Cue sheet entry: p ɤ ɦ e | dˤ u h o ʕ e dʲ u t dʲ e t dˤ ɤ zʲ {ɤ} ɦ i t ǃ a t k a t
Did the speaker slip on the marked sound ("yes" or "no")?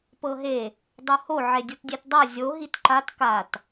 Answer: yes